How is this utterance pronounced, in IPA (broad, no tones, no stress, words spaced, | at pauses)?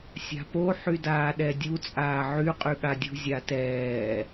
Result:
sʲa̤po ħydaːɗɛdʲu t͡sʼaːʕy qʼyɠadʲṳ zʲatɛː